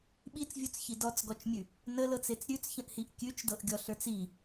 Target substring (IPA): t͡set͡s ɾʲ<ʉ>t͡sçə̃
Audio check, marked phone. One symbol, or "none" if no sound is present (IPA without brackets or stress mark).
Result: ʉ